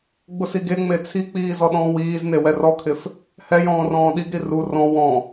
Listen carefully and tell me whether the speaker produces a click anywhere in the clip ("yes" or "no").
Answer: no